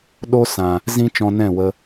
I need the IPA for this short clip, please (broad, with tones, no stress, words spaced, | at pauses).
ɗo˦sã˨ | zĩ˦t͡ʃɔ̃˧ nɛ̃˦˨wə˧